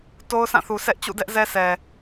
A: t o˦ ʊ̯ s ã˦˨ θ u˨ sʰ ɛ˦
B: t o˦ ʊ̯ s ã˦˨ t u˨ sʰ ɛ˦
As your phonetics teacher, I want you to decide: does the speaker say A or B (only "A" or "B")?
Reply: A